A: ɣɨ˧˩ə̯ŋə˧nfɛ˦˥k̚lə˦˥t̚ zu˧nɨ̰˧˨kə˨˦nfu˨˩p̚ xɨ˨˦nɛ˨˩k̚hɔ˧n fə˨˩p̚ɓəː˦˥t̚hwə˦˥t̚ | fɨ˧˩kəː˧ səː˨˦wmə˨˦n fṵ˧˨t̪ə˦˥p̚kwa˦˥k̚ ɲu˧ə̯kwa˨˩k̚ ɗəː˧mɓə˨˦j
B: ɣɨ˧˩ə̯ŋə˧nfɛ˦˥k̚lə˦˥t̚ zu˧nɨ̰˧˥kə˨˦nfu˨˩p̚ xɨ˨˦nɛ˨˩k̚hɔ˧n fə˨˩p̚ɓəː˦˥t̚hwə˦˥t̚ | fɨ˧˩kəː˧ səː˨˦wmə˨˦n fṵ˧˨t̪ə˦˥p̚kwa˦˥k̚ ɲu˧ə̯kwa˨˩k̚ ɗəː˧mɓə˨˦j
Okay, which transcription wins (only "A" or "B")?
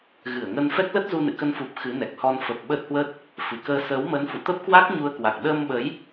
A